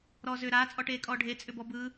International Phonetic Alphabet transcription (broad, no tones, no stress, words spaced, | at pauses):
ɾɔːzʏːɾaː t͡sʼɔʈeːkʼɔːɖʱe t͡sʼʏbɔbɯ